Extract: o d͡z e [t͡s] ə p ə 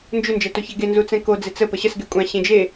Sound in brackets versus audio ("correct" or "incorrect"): correct